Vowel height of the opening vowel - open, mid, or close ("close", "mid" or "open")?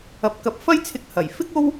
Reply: open